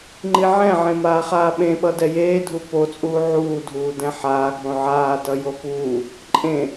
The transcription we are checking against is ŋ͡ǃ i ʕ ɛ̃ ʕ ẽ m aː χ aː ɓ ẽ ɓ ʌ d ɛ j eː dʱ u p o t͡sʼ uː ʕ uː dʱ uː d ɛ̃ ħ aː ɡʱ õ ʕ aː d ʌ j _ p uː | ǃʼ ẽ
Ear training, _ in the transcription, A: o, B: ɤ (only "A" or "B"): A